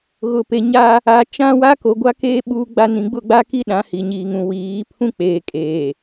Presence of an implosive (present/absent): present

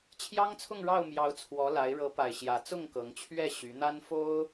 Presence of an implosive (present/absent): absent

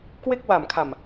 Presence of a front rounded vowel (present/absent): absent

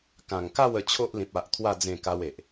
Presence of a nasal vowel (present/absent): present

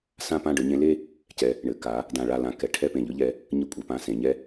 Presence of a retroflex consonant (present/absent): present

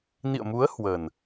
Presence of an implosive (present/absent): absent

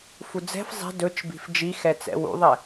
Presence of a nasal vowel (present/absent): absent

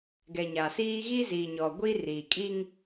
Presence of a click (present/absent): absent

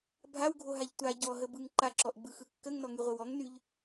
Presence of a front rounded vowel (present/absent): present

